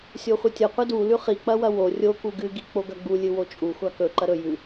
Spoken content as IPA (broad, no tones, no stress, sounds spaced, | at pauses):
sʲ o χʷ ɨ tʲ ɐ qʷ ɐ d u l ʉ χ i k͡p ɐ w ɐ w o rʲ o k u ɡ ɨ ɡ i k͡p o ɡ ɐ ɡ͡b u lʲ ɨ w o t͡ʃʼ u xʷ a k ɵ ǃ ɐ ɾ ɵ j ʉ